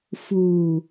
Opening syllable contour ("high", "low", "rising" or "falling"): low